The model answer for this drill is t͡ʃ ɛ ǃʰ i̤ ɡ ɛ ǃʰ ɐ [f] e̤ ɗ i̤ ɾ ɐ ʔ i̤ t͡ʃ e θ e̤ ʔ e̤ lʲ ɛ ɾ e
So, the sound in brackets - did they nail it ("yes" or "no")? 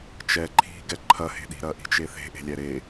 no